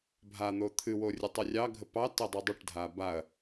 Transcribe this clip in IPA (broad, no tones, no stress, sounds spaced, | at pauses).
bʱ a n̪ o t̪ʰ ɨ w o rʲ ɨ tˤ ɨ rʲ ɑ ɡʱ ə p ɑ t ə dˤ ə dˤ ə ʈ dʱ a b a ɐ̯